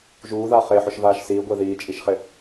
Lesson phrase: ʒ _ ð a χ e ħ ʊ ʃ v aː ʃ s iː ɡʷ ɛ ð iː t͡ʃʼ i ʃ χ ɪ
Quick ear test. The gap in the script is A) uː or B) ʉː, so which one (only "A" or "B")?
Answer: A